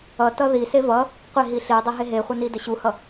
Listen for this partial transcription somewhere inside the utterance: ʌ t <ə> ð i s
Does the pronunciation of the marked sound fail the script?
yes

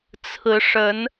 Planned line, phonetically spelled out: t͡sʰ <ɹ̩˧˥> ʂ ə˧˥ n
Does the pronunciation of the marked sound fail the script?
no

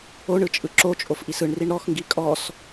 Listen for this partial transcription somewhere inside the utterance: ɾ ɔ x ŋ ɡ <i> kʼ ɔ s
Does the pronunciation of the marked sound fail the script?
no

